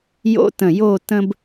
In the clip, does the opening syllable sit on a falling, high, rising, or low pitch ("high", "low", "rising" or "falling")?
high